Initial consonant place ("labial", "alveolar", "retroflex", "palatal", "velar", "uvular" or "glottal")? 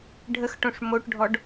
retroflex